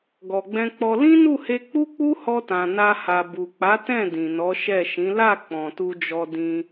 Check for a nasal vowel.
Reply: present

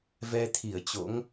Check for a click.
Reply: absent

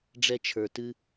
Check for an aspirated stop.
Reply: present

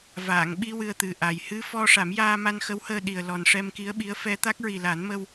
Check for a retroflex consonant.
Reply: present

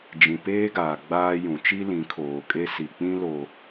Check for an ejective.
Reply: present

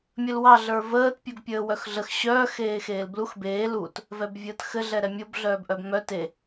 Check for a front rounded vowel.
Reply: present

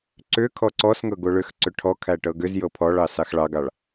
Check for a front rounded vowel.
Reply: present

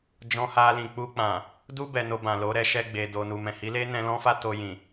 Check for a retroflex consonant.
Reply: absent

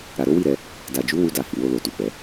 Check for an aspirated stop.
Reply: absent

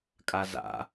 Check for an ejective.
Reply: present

